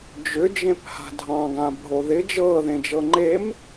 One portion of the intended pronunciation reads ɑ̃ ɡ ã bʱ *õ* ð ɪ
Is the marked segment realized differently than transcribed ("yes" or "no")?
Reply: yes